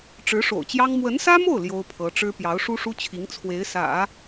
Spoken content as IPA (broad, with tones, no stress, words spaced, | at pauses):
ʈ͡ʂɻ̩˧˥ʂo̰˨˩ʊ̯t͡ɕjɑ˥ŋ mwə˧˥nsä˥mo˥˩ʊ̯ ljo˥ʊ̯pʰɤ˧˥ʈ͡ʂɻ̩˥ pjɑ˧˥ʊ̯ʂu˥ʂu˥t͡ɕʰi˧˥ŋ t͡sʰwe˧˥ɪ̯sä̰˨˩˦